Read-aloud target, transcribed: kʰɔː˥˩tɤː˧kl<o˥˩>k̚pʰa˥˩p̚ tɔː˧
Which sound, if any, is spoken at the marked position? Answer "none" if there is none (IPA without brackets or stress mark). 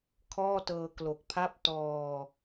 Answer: o˨˩